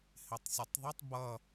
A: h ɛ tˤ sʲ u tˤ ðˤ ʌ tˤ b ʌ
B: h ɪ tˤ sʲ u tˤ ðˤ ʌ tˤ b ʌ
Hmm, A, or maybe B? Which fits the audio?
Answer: B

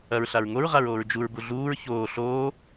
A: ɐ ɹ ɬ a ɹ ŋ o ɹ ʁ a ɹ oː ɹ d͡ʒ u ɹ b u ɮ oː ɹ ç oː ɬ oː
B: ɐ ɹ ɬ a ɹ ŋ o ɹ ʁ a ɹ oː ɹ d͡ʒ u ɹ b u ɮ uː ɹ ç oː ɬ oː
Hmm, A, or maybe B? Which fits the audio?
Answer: B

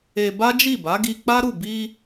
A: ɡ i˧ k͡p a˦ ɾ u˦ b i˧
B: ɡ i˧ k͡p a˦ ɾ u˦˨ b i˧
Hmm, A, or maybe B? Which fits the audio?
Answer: B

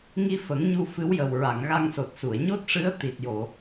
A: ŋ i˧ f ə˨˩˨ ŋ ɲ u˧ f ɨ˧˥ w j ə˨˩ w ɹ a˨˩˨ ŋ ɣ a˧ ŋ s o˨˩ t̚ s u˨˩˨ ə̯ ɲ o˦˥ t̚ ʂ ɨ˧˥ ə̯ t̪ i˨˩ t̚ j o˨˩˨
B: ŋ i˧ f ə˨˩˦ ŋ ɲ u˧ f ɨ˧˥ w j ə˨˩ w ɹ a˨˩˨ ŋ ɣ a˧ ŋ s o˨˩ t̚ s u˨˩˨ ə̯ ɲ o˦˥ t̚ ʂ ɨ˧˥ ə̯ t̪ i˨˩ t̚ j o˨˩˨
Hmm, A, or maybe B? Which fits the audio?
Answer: B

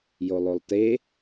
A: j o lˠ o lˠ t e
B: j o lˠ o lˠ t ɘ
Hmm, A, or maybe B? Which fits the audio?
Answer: A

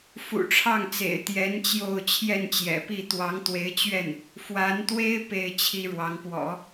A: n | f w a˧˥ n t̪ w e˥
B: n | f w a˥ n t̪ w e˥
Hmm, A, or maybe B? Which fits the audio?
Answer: A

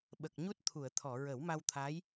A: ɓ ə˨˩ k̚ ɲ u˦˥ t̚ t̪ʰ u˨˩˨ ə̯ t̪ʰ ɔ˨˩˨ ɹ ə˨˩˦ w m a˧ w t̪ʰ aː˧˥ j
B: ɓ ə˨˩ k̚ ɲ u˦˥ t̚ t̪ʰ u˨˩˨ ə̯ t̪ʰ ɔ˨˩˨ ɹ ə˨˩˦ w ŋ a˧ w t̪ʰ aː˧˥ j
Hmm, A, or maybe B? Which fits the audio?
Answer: A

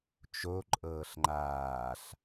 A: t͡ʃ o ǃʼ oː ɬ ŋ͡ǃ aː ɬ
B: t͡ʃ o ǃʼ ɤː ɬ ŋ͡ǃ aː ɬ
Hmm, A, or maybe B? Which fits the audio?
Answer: B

